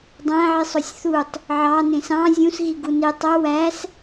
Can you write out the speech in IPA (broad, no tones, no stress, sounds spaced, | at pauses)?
dˤ æ̃ ʕ i sˤ o sʲ θ u tˤ | ʕ ɑ n ẽ s ɑ̃ zʲ ũ s ɣ i ɡ u n i tˤ o w æ s